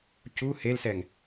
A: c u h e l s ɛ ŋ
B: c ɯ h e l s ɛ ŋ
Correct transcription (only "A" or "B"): A